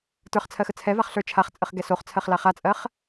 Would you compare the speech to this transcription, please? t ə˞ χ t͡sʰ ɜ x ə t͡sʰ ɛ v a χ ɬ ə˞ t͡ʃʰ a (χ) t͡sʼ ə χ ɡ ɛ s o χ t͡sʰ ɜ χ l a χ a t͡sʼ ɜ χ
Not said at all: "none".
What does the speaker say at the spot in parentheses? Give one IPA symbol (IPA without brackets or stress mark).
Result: χ